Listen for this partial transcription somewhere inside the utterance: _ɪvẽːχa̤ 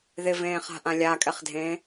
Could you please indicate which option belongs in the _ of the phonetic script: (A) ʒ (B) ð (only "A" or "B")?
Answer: B